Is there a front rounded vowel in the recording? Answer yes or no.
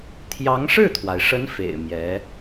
no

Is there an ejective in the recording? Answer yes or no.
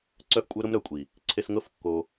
yes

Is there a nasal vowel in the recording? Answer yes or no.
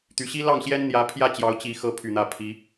no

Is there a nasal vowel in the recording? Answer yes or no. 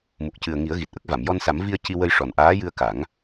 no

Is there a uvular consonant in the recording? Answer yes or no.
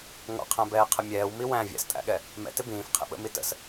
yes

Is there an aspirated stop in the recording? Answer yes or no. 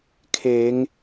yes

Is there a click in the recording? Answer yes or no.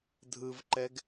yes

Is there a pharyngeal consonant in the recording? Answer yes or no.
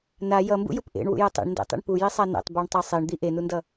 no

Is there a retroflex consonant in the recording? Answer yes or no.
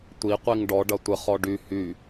yes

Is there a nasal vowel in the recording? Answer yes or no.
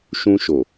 yes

